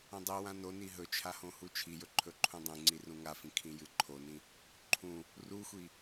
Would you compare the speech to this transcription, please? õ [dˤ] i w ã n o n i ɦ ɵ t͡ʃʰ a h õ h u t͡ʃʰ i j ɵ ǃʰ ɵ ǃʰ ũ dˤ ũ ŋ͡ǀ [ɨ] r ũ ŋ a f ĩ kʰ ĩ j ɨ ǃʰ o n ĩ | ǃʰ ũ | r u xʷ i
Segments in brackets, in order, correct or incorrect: correct, incorrect

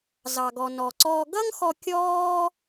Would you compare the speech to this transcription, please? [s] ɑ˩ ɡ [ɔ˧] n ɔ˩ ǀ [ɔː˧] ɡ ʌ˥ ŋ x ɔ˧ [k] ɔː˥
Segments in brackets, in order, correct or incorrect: incorrect, incorrect, correct, incorrect

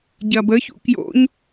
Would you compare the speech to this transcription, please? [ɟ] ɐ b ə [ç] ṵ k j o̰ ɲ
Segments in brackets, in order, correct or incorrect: correct, correct

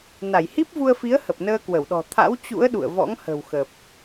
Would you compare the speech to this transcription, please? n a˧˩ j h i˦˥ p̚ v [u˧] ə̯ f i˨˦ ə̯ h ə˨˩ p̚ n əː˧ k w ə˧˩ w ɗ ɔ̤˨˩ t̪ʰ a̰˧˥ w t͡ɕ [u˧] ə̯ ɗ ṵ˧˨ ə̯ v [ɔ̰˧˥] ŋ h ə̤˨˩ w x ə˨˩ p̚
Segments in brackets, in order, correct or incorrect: correct, incorrect, correct

